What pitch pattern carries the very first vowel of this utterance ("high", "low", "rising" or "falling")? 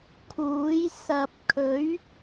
rising